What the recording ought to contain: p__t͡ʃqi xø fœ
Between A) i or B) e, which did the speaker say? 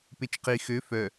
B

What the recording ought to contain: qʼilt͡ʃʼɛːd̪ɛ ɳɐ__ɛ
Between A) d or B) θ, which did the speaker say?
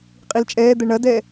A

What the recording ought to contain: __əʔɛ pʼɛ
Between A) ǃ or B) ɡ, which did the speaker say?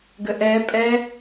B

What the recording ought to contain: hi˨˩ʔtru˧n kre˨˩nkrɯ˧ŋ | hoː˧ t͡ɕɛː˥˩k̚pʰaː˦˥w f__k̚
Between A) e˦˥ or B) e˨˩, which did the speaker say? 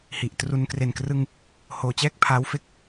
A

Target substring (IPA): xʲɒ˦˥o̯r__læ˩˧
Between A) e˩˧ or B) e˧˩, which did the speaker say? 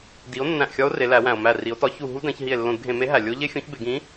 A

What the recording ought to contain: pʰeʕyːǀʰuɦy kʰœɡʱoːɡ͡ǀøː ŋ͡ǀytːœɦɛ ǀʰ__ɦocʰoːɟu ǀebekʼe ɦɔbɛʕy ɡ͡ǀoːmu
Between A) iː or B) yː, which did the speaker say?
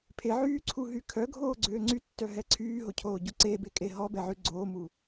B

